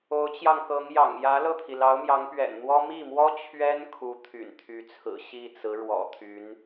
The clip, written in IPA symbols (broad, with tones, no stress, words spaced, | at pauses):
o˧˥ʊ̯t͡ɕjɑ˧ŋkɤ˧˥ŋjɑ̰˨˩ŋ jä˧˥lɤ˥˩t̪ʰi˩ lɑ˧˥ʊ̯mjɑ˧˥ŋpɥɛ̰˨˩nn̪wɔ˥ mi˥˩mwɔ˥ t͡ɕʰɥɛ˥n kʰu˧˥t̪ʰy̰˨˩nt̪ʰy˧˥t͡sʰɹ̩˨˩ ɕi˥˩t͡sɹ̩˧˥ ɻwɔ̰˨˩t̪ʰy˧˥n